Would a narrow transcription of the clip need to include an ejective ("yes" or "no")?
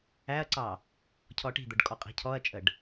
yes